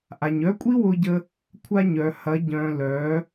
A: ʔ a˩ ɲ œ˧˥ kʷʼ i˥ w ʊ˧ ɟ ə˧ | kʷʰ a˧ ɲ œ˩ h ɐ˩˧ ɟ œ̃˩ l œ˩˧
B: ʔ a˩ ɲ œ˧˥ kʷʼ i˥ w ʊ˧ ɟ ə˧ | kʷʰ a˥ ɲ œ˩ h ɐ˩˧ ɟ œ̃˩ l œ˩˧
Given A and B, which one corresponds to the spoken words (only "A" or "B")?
A